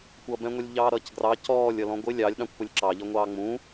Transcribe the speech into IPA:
kʷ ʌ b ɛ̃ ŋʷ ɛ lʲ ʎ ɑː ɾ ʌː c ɡ r ɑ c ɔː lʲ ʌ l ɔ̃ ɡʷ ɪ lʲ ɑ lʲ ɗ ɑ̃ kʷ p ʊ lʲ ǁ ɑ ʎ ʌ ŋʷ ɑː ŋ͡m ũ

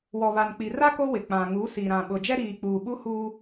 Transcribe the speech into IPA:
w ɔ˨ β a˨ n k͡p i˨ r a˦ k o˦ w ɪ˨ k͡p ã˨ ŋ u˨˦ s i˨ ɾ ã˨ ɓ ʊ˨ d͡ʒ ɛ˦ ɾ iː˨ k͡p uː˨ ɓ u˦ h uː˦

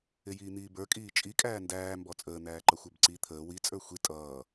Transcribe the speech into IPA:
ɪ j iː n̪ iː b ə˞ kʼ iː t͡ʃʼ i kʼ æː n d æː m b ɔ t͡sʼ əː n̪ æː ǃ ʌ xʷ ə˞ b ǀ i t̪ʰ əː w i t͡sʼ ə˞ xʷ i tʼ ʌː

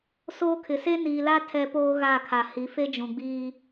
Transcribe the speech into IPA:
s oː˦ kʰ ɪ˨ s e˦ n iː˨ l a˦ tʰ ɛ˦ p oː˦ ɣ a˦˨ kʰ a˨ h i˨˦ f e˦ d͡ʒ ũ˨ ɡ͡b iː˦

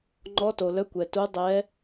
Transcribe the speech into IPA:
ŋ͡ǃ ɔ˦˥ t o˧ l œ˦˥ kʷ ɛ˧ t u˦˥ dˤ ɛ˦˥

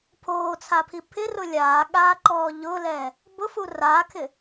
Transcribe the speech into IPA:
pʰ oː t͡sʰ a pʰ i pʰ ɪ r ʊ lʲ aː ɠ aː ǃ ɔː ʎ ʊː l ɛː | b ʊ f u r aː kʰ ɪ

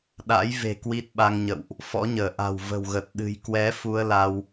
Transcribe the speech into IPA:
ɗ a̰˧˥ j v e̤˨˩ k w i˦˥ t̚ ɓ a˧ ŋ ɲ ə̰˧˨ w ʔ | f ɔ̰˧˥ ɲ əː˧˩ ʔ a̤˨˩ w v ə̤˨˩ w ɣ ə˨˩ t̚ ɗ ɨ̤˨˩ j k w ɛ˨˦ f u˧ ə̯ l a˧ w

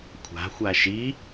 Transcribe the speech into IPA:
kʷʰ a̤ xʷ a ʃ i

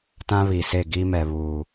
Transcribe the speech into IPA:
t ã˦ β i˨ s e˦˨ ɡ i˦ m ɛ˨ β uː˨

